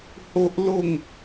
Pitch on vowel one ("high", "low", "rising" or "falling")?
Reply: high